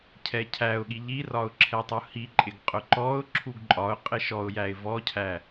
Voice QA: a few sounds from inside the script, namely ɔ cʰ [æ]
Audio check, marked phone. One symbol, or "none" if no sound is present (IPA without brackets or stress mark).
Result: æ